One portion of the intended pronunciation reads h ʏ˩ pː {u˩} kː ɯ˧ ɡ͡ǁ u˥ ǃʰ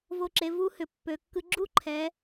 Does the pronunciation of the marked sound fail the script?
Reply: yes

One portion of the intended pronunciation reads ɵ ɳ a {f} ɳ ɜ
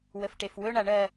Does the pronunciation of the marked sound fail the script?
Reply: yes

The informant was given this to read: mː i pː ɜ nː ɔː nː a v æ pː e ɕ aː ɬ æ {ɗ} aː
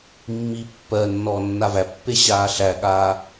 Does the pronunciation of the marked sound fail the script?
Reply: yes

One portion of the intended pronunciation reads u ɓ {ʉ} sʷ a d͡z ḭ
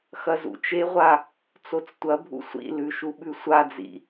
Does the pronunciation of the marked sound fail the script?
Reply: no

